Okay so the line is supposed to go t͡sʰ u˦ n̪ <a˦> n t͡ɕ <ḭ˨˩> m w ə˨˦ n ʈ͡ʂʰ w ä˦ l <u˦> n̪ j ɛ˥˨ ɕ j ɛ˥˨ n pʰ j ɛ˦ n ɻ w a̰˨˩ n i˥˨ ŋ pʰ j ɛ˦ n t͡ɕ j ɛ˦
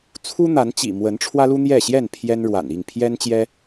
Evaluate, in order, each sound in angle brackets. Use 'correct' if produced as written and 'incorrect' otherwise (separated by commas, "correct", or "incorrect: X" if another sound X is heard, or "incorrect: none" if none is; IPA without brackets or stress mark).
incorrect: a˨˦, correct, correct